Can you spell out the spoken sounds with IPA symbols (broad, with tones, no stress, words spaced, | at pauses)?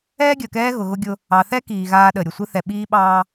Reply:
ɛː˦ɡʲəː˨kɛː˦ ɣʊ˨ɣʊ˦ɡʲʊ˦ | ɑ˨θɛ˦kiː˨ ɣaː˦ɗə˨ɾʲʊ˨ sʷɨ˦θɛ˨ ɓiː˦ɓɑː˦